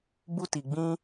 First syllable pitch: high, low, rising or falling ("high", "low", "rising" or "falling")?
high